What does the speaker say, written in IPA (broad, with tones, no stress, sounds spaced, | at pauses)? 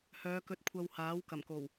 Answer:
h œː˨˧ k ɵ˧ t̚ kʷʰ ɐ˧ w h aː˨˥ w k ɐ˨˩ m k o˨˩ w